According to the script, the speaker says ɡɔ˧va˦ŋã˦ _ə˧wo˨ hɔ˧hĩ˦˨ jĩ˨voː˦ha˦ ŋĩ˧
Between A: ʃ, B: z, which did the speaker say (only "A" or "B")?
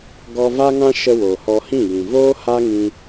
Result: A